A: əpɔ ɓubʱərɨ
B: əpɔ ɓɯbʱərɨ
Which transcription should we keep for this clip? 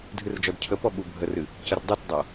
A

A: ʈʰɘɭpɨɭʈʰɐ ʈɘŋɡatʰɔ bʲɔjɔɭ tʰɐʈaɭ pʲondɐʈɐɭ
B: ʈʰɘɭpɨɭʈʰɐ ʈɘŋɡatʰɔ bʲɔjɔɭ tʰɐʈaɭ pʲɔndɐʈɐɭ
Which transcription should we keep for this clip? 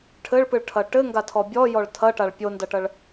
A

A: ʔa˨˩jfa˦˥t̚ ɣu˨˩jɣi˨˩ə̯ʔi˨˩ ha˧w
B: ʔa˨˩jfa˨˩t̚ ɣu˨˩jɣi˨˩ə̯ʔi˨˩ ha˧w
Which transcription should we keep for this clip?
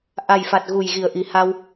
B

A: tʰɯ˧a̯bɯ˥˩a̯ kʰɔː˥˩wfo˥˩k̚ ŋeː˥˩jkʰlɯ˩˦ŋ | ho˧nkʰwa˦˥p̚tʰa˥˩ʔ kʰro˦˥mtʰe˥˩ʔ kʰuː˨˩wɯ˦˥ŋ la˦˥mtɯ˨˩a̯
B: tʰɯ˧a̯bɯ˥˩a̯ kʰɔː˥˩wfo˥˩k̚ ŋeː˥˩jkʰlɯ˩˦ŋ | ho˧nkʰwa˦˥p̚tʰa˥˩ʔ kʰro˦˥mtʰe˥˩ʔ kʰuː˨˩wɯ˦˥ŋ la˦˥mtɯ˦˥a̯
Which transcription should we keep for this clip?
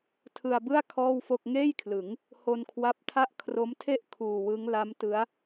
B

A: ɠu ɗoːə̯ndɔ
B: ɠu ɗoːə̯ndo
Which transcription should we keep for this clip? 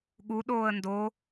B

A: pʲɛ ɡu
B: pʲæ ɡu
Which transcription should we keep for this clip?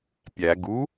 B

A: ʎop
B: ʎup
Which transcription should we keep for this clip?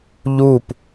B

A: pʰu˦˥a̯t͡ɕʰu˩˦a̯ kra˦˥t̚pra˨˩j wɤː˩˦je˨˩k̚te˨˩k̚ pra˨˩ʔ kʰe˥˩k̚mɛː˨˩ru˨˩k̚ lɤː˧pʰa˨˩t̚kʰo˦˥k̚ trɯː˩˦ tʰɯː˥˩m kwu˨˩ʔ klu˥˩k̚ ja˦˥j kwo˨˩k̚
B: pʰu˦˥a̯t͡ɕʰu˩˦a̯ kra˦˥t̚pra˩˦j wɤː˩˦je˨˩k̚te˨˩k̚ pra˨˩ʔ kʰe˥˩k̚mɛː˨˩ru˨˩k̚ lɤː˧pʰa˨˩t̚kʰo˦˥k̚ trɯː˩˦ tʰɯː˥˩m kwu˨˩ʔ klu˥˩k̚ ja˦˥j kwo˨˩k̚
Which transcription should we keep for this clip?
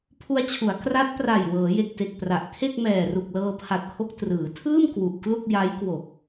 A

